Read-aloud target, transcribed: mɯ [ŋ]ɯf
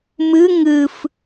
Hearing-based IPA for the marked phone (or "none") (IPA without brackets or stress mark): ŋ